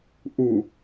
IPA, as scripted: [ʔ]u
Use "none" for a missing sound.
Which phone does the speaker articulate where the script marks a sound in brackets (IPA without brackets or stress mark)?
ʔ